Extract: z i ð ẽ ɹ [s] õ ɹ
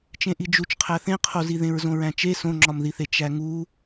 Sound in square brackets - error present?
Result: yes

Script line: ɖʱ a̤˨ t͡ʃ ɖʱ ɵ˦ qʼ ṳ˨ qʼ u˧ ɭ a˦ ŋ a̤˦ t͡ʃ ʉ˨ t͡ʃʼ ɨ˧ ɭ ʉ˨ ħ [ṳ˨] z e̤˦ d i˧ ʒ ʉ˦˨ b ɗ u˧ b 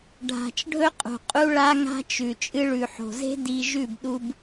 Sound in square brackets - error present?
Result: yes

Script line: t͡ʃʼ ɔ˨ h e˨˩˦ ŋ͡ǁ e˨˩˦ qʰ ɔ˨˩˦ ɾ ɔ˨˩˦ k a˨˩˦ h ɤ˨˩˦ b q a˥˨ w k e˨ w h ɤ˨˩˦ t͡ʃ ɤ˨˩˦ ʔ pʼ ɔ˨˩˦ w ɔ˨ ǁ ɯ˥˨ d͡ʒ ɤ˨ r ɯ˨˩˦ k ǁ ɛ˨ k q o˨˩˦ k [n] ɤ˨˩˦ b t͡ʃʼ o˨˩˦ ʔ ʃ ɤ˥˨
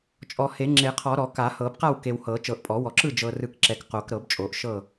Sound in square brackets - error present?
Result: yes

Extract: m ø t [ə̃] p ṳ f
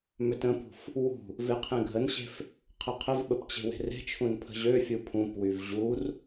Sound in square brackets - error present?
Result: no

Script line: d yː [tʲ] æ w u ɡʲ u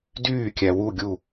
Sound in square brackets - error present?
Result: yes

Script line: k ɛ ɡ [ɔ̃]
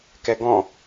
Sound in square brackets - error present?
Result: no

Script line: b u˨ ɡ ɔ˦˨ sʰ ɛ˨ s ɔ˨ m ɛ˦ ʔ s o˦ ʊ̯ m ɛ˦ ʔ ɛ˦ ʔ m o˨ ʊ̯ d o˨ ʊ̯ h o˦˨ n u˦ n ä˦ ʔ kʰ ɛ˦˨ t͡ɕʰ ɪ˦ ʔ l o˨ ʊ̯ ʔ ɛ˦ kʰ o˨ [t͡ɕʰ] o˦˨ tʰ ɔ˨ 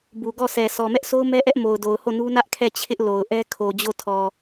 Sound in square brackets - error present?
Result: yes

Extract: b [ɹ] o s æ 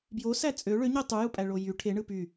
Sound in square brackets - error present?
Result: yes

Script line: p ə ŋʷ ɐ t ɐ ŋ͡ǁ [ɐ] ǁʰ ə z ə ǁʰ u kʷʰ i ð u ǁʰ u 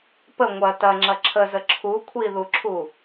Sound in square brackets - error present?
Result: no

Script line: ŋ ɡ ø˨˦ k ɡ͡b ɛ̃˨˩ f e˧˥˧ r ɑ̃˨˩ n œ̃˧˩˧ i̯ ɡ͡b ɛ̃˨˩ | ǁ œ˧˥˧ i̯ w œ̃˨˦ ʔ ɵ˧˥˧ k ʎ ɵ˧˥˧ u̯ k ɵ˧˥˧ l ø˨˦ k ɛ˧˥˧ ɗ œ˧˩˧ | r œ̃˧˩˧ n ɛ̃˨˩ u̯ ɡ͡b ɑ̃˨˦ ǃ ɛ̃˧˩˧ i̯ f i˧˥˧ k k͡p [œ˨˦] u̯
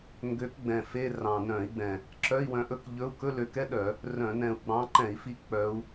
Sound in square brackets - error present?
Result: no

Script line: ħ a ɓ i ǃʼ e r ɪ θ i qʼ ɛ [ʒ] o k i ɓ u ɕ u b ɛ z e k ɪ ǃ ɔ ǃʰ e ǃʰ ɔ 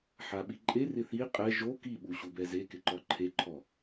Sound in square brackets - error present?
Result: no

